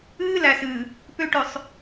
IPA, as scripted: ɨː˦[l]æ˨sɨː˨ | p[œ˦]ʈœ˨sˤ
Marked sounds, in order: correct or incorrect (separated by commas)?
correct, incorrect